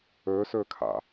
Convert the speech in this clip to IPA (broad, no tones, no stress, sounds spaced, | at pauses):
ɵ s ɵ kʰ a̰